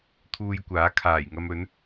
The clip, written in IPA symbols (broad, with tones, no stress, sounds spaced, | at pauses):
t̪ʰ uː˧ j kʷ aː˨˥ kʰ aː˨˩ j ŋ ɐ˧ m ɵ˨˥ n